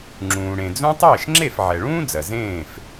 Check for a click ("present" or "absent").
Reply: present